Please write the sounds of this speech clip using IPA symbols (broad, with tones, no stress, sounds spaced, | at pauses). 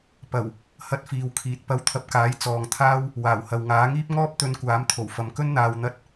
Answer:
p ɐ˨˩ w | h ɐ˧ t̚ f iː˨ w kʰ iː˨ t̚ p ɐ˧ w t̪ʰ ɐ˧ p̚ k aː˨˥ j t͡s ɔː˨ ŋ t̪ʰ aː˥ w | w aː˨˩ w h ɐ˨ w ŋ aː˨˥ ŋ iː˥ p̚ ŋ ɔː˥ p̚ t̪ ɵ˧ n kʷ aː˨˥ m t̪ʰ o˨˩ w f ɐ˨ m k ɵ˥ n n̪ aː˧ w n̪ ɐ˥ t̚